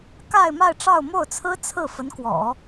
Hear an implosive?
no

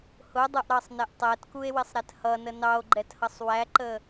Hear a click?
yes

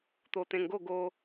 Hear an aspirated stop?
no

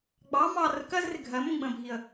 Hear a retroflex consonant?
no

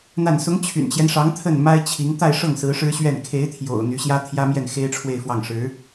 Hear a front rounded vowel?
yes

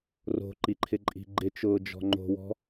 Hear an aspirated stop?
yes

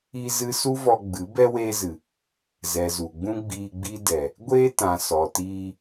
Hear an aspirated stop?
no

